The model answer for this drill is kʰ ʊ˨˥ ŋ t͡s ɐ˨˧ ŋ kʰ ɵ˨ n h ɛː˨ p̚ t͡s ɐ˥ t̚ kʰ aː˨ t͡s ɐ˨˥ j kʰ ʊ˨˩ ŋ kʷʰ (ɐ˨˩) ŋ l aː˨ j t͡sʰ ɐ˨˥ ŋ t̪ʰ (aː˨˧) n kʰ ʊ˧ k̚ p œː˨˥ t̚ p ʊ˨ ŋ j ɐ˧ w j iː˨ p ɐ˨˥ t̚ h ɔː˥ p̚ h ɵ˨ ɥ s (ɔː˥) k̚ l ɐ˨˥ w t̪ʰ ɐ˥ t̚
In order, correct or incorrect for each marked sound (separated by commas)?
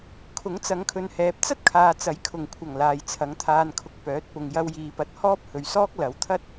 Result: correct, incorrect, correct